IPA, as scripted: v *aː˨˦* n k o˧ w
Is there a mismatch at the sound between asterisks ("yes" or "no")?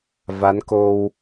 yes